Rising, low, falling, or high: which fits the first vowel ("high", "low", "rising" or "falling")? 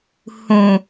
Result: low